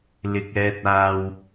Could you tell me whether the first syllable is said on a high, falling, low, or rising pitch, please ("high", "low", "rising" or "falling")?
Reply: low